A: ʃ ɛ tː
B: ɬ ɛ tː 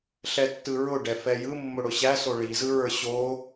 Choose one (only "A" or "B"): B